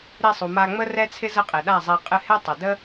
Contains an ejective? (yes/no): yes